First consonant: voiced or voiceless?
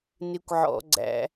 voiced